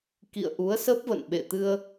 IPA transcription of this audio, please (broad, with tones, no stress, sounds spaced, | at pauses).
k ḭ˧˨ ə̯ ʔ u˨˦ ə̯ s ə˦˥ p̚ v ə̰˧˨ n ɓ ḛ˧˨ t̪ ɨ˧ ə̯